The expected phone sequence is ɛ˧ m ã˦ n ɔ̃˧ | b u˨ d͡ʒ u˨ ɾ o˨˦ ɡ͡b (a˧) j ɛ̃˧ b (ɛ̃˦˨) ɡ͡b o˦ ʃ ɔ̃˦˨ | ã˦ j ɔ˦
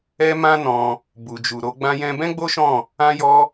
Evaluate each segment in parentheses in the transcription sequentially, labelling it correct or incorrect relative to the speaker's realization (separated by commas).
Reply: incorrect, incorrect